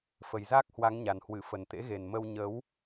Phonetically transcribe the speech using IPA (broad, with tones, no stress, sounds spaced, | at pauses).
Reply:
f ə˨˩ j z aː˦˥ k̚ h w a˨˦ ŋ ɲ a˨˩ n h w ɨ˧˩ f ə˨˩ n t̪ ḛ˧˥ ɣ e˨˩ n m ə˧ w ɲ ə˨˦ w